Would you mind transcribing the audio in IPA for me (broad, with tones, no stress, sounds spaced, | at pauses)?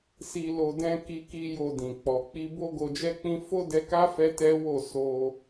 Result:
s i˧ l o˧ d ɛ̃˦ k i˦ k i˦ j o˧ d ĩ˨ k͡p ɔ˨ k͡p i˧ b o˦ ɡ o˧ d͡ʒ ɛ˦ k͡p ĩ˦ f o˦ d ɛ˧ k a˦ f ɛ˦ t ɛ˦ w o˦˨ s o˧